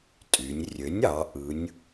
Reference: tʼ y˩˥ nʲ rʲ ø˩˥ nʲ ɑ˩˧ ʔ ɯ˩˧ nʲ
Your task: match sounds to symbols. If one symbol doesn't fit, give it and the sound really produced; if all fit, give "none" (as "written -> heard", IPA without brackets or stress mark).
y˩˥ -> y˩˧